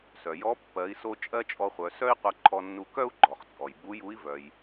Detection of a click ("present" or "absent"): present